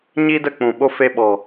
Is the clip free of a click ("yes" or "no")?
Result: yes